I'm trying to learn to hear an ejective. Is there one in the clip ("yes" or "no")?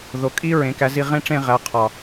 yes